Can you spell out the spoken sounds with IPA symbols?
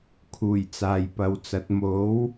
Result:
kʰ uː˨˩ j t͡s aː˨ j p ɐ˨˧ w t͡s ɐ˨˥ t̚ m o˨˥ w

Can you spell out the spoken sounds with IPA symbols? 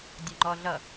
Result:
dʲ ʌ ŋ͡ǃ ɔ ɮ ʌ

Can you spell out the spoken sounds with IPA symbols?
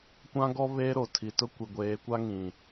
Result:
kʷ ã˦ ɡ ɔ˦ β eː˦ ɾ o˨ tʰ i˨ t ʊ˦ kʷ i˨ ɡʷ eː˨˦ kʷ a˦ ŋ ĩ˨

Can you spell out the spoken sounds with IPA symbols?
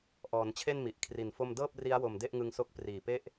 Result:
ʔ ɔː˩˦ n t͡ɕʰ e˥˩ n m i˨˩ ʔ kʰ r i˨˩ n f o˥˩ m d ɤː˥˩ p̚ r i˦˥ a̯ w o˨˩ m d e˥˩ ʔ ŋ ɯ˧ ŋ s o˦˥ k̚ p r iː˨˩ p e˥˩ ʔ

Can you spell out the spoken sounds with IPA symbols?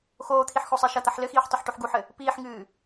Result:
x oː t̪ʰ i ħ x o sˤ e ʃ ɐ t̪ ɐ ħ l ɘ x iː ħ tˤ ɐ ħ ʈ u ħ ɡ u ħ ɘ | p iː ħ ŋ ɨː

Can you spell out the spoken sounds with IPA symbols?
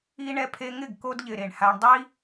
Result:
i˧ ɳ ɛ˧ pʰ e˧ ŋ ɪ˦˨ ɡ k o˧ d ʎ ɪ˨ ɾ e˨ ɳ h a˧ ɳ dˤ i˧

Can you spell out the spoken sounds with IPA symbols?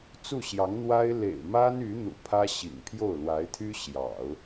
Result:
t͡s u˥˩ ɕ j ɑ˧˥ ŋ n̪ w a˥ ɪ̯ l ḛ˨˩ ɪ̯ m a˥ n y˧˥ n̪ ṵ˨˩ pʰ ä˥ ɕ ḭ˨˩ ŋ pʰ j o˥˩ ʊ̯ l w a˧˥ ɪ̯ t̪ʰ y˥ ɕ j ɑ̰˨˩˦ ʊ̯

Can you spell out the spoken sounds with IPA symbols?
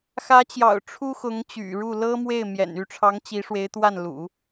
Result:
x ä˧˥ t͡ɕ j ɑ̰˨˩ ʊ̯ ʈ͡ʂʰ u˥ x ʊ˧˥ ŋ t͡ɕ y̰˨˩ ɻ u˥˩ l ɤ˥ m w e˥˩ ɪ̯ m j ɛ̰˨˩ n y˥˩ ʈ͡ʂʰ ɑ˧˥ ŋ t͡ɕ i˧˥ ʂ w e˧˥ ɪ̯ t̪ w a˥˩ n l ṵ˨˩˦

